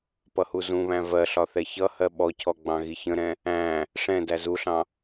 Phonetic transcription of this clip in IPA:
pʌhuzũβæ̃ vɜɬɒ θɛçʌhɜ ɓɔcʰɔ ɡ͡bɑ̃ɣiçə̃ɾɛ̃ | æ̃ | ʂɛ̃ dæzuɬɑ̃

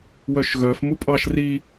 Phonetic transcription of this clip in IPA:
wœʃɣœf mupʼɑʃ ri

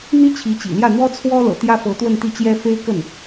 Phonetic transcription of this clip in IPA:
n̪i˥ t͡ɕʰi˧˥t͡ɕḭ˨˩ ljä˥˩n̪wɔ˥t͡sʰwɔ˥ lɤ̰˨˩t̪jä˥fɤ˧˥ t̪wə˥˧nt̪i˥˩ t͡ɕjɛ˥fe˥ɪ̯ kə˥˩n

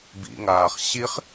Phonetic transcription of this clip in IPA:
bḭŋaːχ ɕiχ

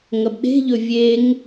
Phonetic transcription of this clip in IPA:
ŋɐbɗe̤ʎɵ vʲeŋ

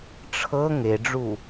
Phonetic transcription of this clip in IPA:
ʈ͡ʂʰɤ ŋeɖ͡ʐu

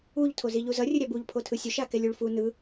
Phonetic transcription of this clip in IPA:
uʎ tʰoziʎuzʌ rʲɯɾʲabuʎ pʰotʰɯsʲoʃ akɛlʲuɭfu nɯ

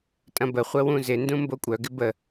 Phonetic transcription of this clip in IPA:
tʼɐ̃bəχʷə wũzɪndũ mbokʷʼœɡɪ bə

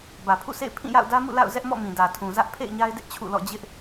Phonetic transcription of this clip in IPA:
bä˨pʰṵ˦˨sḛ˦˨ɪ̯ pʰĩ˦˨ja̰˦˨ʊ̯ dä˦mṵ˦˨ la̰˦˨ʊ̯zɛ˦ʔmɔ̰˦˨ mĩ˨dä˨tʰũ˨zä˦ʔ pʰḛ˦˨ɪ̯ɲa˦ɪ̯dɪ˦ʔ t͡ɕʰṵ˦˨lɔ̰˦˨ d͡ʑɪ˦ʔ

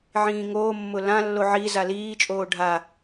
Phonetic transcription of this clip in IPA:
ʕĩːŋoːmːʊ lãlːo ʕi zaliːt͡ʃʼoː ɖʱa

